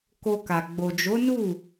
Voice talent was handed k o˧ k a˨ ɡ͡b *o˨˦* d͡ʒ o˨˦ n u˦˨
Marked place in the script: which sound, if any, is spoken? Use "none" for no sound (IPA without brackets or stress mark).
o˨